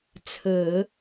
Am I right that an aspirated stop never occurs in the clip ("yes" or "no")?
no